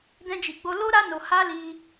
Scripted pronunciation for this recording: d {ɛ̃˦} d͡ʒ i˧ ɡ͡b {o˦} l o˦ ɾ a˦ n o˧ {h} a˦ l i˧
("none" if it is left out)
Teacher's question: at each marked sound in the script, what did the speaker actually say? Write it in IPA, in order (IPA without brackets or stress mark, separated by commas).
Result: ɛ̃˦, o˦, h